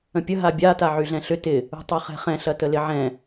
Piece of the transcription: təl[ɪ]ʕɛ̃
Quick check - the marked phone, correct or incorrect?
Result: correct